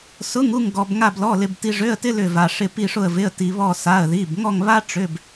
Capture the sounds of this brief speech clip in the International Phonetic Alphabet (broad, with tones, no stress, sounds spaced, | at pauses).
s ʊ˧˥˧ ŋ u˥˧ ŋ ɡ ɔ˧ b ŋ a˥˧ b l ɔ˧˥˧ l ɪ˧ b t i˧ ʐ ø˧˥˧ ə̯ t ɪ˥ l ʏ˥˧ v a˧ ʂ ɪ˥˧ p i˥˧ ʂ ʊ˥˧ ə̯ v ɪ˧˥˧ ə̯ t i˧ β ɔ˥˧ s a˧˥˧ ə̯ ð i˧˥˧ b ŋ ɔ˥˧ ŋ β a˥ ʈ͡ʂ ʏ˧˥˧ b